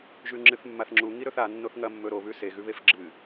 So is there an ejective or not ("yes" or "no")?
no